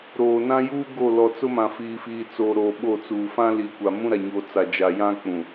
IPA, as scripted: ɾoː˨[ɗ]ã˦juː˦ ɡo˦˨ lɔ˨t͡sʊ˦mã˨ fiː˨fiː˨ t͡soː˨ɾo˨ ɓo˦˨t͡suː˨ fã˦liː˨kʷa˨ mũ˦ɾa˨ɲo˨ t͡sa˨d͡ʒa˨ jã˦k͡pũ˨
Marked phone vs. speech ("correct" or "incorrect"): incorrect